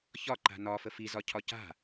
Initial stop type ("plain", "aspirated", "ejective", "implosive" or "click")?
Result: click